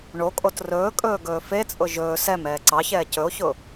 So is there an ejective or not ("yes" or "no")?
yes